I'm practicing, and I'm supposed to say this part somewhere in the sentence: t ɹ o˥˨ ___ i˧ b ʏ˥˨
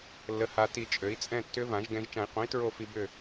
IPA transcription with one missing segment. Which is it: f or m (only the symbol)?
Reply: f